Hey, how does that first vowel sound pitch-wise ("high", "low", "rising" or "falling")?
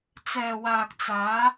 low